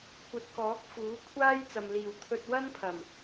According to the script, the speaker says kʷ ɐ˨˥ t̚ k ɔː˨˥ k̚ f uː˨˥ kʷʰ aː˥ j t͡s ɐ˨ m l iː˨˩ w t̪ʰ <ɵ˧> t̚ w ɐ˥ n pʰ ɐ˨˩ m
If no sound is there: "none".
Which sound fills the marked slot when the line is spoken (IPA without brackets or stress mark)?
ɵ˧